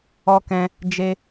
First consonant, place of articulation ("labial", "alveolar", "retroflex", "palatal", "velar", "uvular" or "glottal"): velar